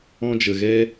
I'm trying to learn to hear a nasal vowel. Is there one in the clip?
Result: yes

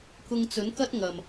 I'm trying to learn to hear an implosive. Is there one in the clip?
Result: no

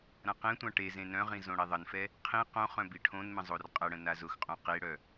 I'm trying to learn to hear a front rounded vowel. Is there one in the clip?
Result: yes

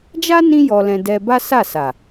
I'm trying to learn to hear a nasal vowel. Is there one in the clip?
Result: yes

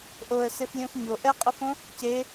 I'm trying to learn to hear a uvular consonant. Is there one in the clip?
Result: yes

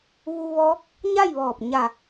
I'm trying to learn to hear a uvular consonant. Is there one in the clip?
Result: no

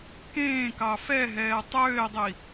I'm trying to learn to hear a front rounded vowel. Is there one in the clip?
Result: yes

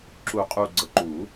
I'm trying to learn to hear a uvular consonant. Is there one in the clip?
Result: yes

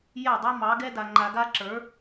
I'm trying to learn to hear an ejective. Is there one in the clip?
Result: no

